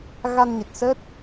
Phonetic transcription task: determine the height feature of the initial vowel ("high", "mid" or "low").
low